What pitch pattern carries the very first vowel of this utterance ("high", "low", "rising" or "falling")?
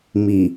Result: low